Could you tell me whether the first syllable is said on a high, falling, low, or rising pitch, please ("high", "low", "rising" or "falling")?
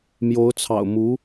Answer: rising